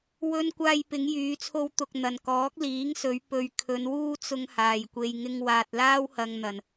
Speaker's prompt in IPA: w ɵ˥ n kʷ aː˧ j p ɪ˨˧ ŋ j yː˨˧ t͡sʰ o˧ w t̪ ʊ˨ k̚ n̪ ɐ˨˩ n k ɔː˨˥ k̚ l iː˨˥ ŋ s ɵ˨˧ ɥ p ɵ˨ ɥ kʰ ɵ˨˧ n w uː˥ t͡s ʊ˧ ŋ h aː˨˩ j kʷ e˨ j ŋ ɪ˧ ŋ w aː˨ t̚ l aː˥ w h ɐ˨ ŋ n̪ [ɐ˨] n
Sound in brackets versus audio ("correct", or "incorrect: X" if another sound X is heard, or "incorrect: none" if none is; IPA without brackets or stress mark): incorrect: ɐ˨˩